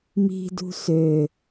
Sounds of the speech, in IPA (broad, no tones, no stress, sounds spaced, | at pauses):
m i̤ d ṳ s ø